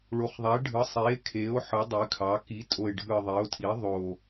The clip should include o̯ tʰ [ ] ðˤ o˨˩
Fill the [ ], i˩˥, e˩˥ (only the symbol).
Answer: i˩˥